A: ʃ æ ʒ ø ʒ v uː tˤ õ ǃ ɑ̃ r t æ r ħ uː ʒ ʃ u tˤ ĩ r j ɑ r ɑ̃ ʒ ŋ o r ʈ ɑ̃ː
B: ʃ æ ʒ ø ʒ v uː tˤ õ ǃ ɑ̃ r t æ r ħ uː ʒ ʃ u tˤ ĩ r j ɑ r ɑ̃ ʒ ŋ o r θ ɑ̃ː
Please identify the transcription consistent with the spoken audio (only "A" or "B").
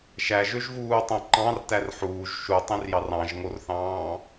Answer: B